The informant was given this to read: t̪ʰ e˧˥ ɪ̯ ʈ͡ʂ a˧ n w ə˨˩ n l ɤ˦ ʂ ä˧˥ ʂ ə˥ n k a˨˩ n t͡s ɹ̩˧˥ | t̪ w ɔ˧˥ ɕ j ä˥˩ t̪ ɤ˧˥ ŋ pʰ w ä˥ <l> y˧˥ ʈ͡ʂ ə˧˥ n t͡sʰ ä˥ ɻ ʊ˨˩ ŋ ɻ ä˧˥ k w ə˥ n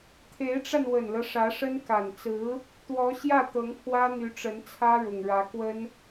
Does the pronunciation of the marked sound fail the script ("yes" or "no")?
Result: yes